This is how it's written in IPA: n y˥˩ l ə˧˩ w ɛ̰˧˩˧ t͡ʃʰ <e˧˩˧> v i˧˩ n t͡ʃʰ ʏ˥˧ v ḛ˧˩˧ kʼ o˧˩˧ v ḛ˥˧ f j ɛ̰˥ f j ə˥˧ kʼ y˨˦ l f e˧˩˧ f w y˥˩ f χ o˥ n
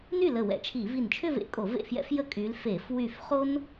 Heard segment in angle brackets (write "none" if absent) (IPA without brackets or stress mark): i˧˩˧